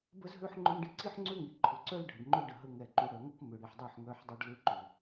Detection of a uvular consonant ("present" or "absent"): absent